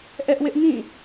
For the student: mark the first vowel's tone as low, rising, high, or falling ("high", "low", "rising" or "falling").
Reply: high